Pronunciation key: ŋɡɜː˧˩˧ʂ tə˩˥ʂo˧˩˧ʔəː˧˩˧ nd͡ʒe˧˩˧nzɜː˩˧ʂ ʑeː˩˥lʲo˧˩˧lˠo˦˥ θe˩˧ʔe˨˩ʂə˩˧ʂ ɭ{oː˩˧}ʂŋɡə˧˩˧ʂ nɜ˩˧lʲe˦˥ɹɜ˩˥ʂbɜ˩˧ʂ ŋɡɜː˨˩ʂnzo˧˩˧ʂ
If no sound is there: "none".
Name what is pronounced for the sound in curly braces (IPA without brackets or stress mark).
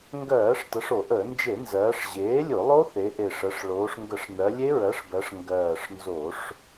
oː˩˧